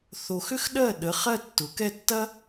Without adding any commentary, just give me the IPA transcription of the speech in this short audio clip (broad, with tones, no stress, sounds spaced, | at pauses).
θ o˧ x ʏ˥ x ɗ ɜ˥˩ ɗ ə˩˧˩ χ ɜ˥˩ tː ʊ˩˧ k ɛ˥˩ tː ɐ˥